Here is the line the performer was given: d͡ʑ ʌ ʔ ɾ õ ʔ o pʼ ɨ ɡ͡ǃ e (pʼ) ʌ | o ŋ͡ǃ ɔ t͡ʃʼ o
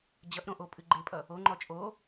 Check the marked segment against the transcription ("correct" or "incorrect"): correct